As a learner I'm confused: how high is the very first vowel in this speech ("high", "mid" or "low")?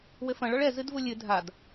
mid